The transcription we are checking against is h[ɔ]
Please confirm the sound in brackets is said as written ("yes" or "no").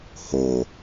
no